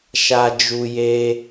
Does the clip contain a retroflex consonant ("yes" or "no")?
no